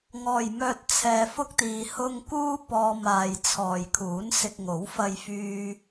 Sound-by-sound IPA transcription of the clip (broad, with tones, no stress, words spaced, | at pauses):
ŋɔː˨jmœː˧t̚ t͡sʰɛː˧fʊ˥k̚t̪iː˧ hʊ˥ŋ kuː˥ pɔː˧maː˨j t͡sʰɔː˨jkʰuː˨˥nsɪ˧k̚ŋo˨˥w fɐ˧jfyː˧